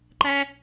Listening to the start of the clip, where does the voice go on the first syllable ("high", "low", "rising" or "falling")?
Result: high